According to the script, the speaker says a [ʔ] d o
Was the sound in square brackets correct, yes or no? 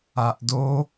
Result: yes